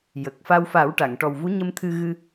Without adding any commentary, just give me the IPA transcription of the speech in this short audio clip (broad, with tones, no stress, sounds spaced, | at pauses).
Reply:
j ə˨˩ k̚ f a˧ w f a˨˩˦ w ʈ a˨˩˨ ŋ ʈ ɔ˨˩ w v u˧˥ ɲ ə˧ m t̪ʰ ɨ˧ ɣ ɨ˧